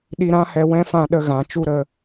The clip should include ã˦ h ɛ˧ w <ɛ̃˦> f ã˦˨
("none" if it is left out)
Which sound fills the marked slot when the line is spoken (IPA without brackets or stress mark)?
ɛ̃˦